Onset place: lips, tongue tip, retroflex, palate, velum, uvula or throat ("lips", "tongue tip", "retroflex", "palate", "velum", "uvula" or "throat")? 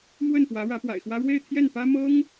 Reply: lips